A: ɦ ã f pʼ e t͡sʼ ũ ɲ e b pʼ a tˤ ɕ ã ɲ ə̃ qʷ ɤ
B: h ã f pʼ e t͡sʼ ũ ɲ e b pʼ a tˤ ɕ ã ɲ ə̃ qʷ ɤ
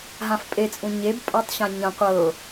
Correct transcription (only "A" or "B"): A